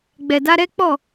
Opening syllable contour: low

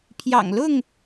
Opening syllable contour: low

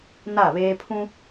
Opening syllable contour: falling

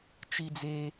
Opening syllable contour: low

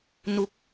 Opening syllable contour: rising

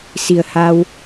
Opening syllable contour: low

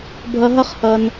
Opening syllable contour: low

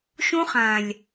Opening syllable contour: high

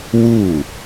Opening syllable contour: falling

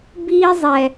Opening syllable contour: high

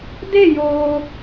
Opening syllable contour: falling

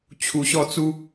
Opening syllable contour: low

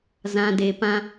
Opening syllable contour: low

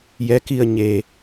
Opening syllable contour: rising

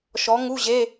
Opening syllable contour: rising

